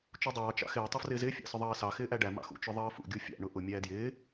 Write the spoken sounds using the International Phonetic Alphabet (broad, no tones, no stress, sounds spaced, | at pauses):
t͡ʃ u dˤ ɑː t͡ʃ ɑ̰ x ɪː tˤ ɪ f r ɪː z ɪː fʲ ɑ̰ s ʊ ðˤ ɑː s ɑ x ɪː ʔ æ ɖ æ m ɑ̰ x ṵ t͡ʃ ʊ ðˤ ʌː f ṵ ɡʲ u fʲ ɑ̰ ɳ ʊ ʔ ʊ mʲ æː d j ɪː